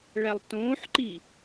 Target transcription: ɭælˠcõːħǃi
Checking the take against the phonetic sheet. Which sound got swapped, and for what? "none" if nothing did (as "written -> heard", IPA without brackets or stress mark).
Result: c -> t